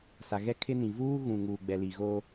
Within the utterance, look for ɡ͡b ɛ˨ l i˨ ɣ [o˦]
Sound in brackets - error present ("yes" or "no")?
no